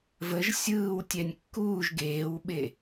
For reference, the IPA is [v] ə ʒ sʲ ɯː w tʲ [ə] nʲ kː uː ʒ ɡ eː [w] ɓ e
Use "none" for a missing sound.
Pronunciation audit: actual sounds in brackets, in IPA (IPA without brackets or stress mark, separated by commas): v, ɛ, w